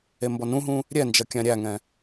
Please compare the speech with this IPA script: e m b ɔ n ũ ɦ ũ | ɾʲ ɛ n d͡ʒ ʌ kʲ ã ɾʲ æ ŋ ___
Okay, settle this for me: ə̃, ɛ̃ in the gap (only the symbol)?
ɛ̃